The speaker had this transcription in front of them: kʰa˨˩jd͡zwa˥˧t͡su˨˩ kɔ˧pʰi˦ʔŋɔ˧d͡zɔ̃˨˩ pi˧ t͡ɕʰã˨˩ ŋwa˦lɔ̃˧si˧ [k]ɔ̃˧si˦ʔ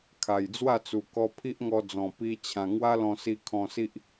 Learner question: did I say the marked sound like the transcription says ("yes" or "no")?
no